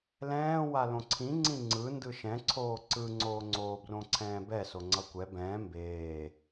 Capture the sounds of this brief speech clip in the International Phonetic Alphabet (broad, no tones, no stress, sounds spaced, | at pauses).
l ɛ̃ː w a l õ ǀʰ ĩ ŋ͡ǀ ĩ ŋ͡ǀ ɯ n d ɯ ʃ ɛ̃ ǀʰ oː ǀ ɯ ŋ͡ǀ oː ŋ͡ǀ oː b r õ ǀʰ ɛ̃ː b ɛ s o ŋ͡ǀ ʌ kʷ ɛ b ɛ̃ː m b eː